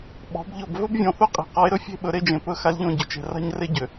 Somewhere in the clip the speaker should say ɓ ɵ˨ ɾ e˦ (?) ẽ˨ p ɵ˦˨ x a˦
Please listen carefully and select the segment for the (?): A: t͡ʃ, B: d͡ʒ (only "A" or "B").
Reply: B